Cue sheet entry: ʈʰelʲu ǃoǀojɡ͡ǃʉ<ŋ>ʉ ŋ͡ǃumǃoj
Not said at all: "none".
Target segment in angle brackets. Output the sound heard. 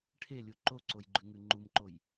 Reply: ŋ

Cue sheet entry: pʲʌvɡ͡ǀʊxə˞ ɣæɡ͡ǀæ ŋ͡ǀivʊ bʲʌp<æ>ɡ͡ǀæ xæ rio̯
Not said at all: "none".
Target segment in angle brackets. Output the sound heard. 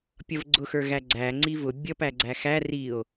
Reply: æ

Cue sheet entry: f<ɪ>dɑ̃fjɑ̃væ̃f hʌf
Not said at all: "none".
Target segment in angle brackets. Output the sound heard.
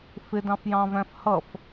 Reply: ɪ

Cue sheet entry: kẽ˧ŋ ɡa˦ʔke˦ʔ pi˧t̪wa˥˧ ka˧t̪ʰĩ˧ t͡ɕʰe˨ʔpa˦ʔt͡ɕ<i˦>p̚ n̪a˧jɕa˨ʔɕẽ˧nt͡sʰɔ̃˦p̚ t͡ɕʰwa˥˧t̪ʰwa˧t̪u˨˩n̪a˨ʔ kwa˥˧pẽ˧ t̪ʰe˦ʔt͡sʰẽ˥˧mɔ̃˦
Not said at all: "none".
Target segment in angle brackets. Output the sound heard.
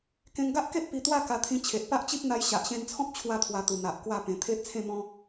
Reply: i˦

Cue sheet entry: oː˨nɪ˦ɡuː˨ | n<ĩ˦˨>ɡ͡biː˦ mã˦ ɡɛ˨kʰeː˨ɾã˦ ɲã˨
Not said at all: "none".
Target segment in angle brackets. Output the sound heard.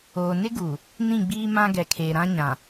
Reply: ĩ˦˨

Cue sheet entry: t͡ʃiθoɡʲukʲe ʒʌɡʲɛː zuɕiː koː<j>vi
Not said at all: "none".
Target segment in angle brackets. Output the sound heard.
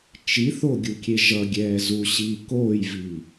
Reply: j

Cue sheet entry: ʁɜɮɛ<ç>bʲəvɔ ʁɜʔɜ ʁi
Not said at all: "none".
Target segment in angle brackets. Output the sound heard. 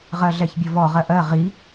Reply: ç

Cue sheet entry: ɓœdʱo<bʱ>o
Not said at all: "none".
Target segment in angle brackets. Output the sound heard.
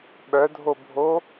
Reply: bʱ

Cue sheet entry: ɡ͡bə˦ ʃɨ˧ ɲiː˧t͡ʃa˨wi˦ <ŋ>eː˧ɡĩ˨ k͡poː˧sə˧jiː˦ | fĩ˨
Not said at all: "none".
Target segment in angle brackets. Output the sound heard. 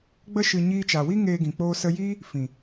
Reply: ŋ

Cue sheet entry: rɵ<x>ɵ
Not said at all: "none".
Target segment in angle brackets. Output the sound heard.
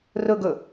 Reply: ɡ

